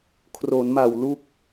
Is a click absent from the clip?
yes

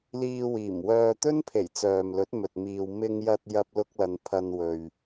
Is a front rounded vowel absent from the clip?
no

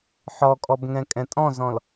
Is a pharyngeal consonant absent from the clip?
no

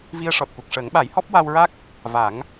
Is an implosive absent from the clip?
no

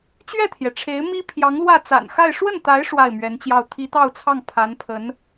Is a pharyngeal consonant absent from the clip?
yes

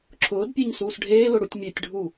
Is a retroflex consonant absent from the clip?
no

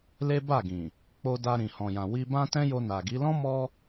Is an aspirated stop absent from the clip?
yes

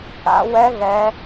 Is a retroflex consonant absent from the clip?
yes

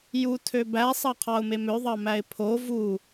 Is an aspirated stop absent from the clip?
no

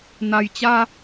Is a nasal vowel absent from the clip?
yes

